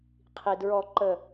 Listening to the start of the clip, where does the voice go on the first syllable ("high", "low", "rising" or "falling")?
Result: low